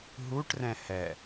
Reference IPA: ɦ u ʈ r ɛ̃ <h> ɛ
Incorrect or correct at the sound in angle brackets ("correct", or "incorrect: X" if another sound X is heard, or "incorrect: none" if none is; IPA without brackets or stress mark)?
correct